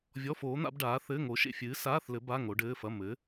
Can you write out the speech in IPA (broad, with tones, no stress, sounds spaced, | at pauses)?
vʲ ɔ˧˥˧ f oː˨˥ n̪ a̰˨˥ b ɖ aː˨˥ θ ɘː˧˥˧ ŋ o˨˥ ʃ ḛ˧˥˧ fʲ ɨː˨˥ s aː˧˥˧ θ l ɘ˨˥ b a˧˥˧ ŋ o˨˥ ɖ ɘː˧˥˧ f ɐ˧˥˧ m ɘ˨˥